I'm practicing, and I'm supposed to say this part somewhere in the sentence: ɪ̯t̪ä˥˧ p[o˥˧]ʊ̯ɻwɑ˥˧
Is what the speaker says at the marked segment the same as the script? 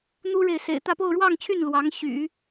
yes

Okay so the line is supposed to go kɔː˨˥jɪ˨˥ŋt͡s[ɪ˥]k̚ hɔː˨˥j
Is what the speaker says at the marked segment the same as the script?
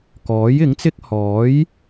yes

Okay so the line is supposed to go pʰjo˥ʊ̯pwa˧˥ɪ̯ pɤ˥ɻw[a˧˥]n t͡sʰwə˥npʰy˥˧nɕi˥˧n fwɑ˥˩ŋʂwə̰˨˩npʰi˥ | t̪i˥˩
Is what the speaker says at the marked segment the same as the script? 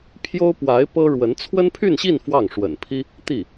no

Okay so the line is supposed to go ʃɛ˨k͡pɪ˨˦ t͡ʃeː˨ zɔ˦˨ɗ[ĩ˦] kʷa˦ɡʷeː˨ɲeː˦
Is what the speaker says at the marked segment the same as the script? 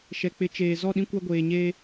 yes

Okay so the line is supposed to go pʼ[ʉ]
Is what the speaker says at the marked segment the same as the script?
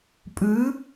yes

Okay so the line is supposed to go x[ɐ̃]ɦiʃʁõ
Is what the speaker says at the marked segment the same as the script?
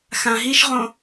no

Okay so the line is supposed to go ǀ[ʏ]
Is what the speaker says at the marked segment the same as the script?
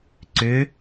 yes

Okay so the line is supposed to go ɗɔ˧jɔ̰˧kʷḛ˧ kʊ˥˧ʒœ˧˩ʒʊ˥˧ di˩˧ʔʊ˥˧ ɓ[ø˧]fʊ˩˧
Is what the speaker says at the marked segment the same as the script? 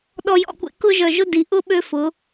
yes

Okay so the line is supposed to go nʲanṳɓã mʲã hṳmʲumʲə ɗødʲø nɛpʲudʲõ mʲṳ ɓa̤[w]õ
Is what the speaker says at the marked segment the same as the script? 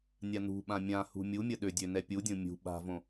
no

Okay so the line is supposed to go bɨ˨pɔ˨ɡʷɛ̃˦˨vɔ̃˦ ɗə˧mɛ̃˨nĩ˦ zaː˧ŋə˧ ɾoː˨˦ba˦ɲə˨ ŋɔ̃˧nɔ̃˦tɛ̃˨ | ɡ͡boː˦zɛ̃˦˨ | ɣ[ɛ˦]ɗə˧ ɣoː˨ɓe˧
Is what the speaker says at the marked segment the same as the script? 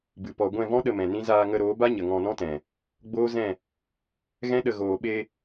no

